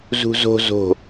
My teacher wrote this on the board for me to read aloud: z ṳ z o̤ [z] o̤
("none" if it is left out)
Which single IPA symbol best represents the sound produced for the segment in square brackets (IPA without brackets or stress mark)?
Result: z